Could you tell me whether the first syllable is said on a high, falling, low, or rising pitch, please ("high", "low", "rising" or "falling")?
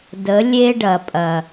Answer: rising